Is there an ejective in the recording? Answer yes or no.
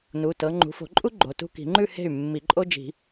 yes